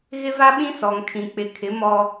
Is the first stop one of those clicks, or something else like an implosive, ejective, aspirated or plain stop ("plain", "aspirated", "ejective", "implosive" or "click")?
implosive